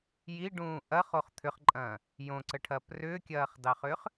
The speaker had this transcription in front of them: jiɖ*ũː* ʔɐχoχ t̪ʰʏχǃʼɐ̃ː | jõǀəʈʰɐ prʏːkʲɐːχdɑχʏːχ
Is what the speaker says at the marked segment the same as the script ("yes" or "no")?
yes